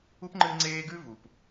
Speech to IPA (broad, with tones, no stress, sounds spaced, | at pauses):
u˥ p ŋ͡ǃ ɨ˦ ŋ͡ǀ eː˦ ɡ ʉ˥ v u˩ p